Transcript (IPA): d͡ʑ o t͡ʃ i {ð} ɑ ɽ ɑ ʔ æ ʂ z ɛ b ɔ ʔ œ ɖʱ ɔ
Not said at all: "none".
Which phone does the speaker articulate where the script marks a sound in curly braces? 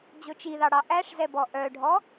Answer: ð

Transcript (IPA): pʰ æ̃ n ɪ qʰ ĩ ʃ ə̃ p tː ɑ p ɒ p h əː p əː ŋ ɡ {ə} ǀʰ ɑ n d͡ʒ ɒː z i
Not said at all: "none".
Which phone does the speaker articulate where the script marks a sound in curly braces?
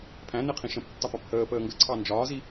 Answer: ə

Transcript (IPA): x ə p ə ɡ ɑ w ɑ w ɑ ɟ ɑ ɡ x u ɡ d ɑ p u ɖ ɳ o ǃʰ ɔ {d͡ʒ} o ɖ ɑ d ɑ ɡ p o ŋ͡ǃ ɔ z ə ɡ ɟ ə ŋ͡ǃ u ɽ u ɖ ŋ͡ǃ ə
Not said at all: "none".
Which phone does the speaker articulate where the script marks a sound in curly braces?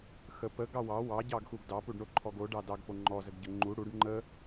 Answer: ɡ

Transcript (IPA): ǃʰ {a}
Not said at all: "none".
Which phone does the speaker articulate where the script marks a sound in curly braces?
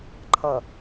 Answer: ʌ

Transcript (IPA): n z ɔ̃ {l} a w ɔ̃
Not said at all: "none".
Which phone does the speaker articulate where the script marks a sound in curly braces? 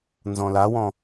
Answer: l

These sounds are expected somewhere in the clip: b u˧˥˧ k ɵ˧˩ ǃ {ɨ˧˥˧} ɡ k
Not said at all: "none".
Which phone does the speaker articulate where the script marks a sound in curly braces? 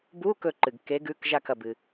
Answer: ɨ˩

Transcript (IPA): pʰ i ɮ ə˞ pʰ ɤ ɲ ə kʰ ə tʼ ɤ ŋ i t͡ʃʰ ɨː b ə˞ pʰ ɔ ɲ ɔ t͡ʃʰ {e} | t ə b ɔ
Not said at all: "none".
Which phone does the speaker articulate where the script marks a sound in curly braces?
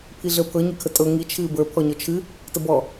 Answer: ɨ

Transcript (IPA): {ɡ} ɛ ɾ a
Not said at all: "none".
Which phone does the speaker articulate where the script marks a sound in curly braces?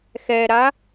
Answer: x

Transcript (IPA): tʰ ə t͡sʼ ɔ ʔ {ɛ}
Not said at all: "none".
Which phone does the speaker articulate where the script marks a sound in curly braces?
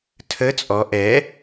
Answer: ɛ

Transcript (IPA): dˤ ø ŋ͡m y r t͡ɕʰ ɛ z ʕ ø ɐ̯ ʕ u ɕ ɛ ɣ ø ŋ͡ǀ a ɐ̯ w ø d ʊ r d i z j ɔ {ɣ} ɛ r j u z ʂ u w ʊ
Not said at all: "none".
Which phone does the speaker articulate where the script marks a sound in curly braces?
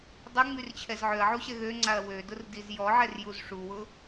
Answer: ʕ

